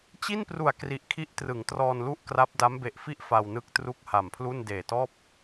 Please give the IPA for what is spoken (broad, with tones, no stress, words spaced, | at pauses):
t͡ɕi˥˩npru˨˩a̯ kri˨˩ʔkʰi˦˥ʔtrɯ˩˦ŋ trɔː˧nlu˥˩ʔkra˦˥p̚ da˦˥mbe˨˩ʔfi˥˩ʔ fa˧wnɯ˦˥k̚tru˥˩k̚ ha˨˩mpʰlu˥˩n deː˨˩tɔː˥˩p̚